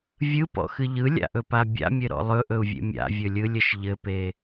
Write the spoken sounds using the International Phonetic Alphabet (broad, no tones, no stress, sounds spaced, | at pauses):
vʲ ɯ p ɔ̰ x ɨ ʎ ɯ lʲ a̰ ʔ ɵ p a bʲ a̰ mʲ ɘ ɾ ɔ̰ lˠ ɵ ʔ ɵ u̯ vʲ ḛ mʲ a̰ vʲ ɵ lʲ ɯ lʲ ɘ ʃ ʎ ɘ p e